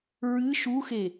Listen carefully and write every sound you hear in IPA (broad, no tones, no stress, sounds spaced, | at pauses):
ɹ ɨ ʃ u x e